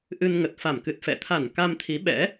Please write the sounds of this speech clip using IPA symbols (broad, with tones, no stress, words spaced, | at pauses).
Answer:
ʔɨ˧nŋə˨˩t̚ fa˧˩mkɨ˨˩t̚fɛ̰˧˨ t̪ʰa˧˩n ka˧mt̪ʰi˨˦ɓɛ̰˧˥